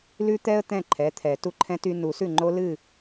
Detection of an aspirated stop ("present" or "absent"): present